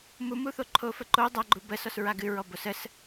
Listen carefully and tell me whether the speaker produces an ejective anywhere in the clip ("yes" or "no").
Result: no